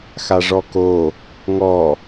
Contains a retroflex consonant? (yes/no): yes